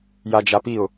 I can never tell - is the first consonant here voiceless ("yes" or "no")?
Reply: no